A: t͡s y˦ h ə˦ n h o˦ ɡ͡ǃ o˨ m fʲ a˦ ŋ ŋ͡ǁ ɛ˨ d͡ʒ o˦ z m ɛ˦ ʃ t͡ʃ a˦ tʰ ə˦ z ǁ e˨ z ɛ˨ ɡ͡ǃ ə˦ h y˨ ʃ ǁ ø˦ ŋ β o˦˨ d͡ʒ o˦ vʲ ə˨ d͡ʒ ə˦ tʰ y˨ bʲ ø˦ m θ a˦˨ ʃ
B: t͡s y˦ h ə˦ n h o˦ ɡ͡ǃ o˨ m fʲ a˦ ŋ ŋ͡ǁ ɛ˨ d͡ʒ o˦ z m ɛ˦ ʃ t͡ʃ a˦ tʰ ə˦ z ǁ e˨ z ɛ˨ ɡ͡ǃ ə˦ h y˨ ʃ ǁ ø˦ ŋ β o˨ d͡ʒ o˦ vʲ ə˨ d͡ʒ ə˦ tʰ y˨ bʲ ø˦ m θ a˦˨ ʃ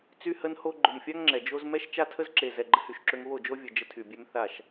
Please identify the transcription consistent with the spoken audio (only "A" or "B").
A